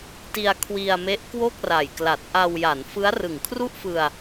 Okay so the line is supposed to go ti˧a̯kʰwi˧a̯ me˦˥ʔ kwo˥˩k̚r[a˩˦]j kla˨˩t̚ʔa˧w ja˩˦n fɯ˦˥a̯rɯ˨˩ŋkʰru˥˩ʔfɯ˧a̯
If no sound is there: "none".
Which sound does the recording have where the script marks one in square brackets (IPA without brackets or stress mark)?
a˨˩